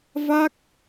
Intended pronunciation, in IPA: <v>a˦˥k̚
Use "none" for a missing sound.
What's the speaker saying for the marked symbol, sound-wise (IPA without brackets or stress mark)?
v